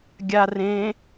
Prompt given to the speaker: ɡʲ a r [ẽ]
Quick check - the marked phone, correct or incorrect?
correct